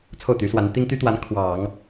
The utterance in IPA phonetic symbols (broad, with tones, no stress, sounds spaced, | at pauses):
t͡sʰ o˥˩ ʊ̯ t̪ y˧˥ s w a˧˥ n t̪ i˥ ŋ t̪ y˥ t̪ w a˧˥ n kʰ w ɑ˨˩˦ ŋ